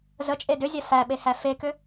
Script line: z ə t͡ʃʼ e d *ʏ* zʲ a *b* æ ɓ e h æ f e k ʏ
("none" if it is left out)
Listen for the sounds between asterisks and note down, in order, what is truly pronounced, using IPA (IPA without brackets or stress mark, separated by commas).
ʏ, f